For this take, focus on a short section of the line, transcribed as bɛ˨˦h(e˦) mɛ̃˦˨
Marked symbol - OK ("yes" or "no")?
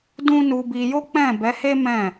yes